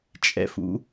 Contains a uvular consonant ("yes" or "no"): no